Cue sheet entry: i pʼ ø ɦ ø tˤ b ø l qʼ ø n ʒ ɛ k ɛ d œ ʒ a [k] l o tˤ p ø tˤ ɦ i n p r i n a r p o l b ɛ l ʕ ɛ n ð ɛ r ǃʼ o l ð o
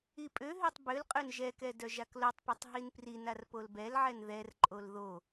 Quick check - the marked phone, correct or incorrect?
correct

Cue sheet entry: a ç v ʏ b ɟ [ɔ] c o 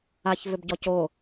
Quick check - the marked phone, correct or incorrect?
correct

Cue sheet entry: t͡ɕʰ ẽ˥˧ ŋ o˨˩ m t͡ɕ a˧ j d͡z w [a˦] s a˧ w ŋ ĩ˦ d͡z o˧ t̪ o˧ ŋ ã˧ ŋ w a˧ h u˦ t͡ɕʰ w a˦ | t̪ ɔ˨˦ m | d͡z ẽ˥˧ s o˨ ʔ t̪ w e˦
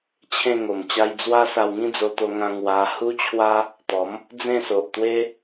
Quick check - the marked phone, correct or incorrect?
correct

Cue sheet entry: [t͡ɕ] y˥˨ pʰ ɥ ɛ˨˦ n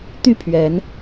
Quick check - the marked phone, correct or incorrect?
incorrect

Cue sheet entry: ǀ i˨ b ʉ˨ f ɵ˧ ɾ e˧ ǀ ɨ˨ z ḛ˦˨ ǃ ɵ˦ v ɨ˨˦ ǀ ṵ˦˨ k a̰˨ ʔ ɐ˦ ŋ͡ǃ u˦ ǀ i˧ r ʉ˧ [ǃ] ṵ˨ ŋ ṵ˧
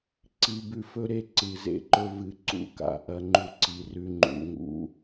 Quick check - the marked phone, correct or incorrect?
incorrect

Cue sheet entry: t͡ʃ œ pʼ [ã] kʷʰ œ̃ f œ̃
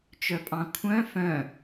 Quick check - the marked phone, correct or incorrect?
incorrect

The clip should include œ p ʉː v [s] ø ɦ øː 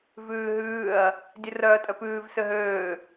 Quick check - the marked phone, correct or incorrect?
correct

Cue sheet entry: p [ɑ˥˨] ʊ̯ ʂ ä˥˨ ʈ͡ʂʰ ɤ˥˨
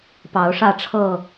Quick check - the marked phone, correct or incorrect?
incorrect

